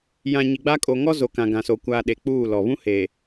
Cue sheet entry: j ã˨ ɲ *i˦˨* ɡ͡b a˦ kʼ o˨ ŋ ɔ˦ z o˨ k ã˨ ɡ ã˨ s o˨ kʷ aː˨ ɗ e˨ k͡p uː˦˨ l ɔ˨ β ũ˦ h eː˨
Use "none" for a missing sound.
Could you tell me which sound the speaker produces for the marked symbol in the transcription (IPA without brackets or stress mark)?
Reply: i˨